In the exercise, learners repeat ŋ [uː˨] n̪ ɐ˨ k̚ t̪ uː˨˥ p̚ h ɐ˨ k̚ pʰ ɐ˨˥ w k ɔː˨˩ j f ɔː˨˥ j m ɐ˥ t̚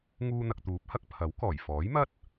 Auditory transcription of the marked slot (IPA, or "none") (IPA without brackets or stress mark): uː˧